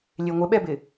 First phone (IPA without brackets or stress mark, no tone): lʲ